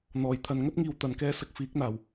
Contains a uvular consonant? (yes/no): no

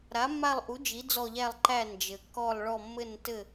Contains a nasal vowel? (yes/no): no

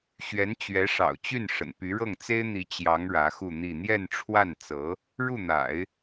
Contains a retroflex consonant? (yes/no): yes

